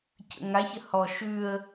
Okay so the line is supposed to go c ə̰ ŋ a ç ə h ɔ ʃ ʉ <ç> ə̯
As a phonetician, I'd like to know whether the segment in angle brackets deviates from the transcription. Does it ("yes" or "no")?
yes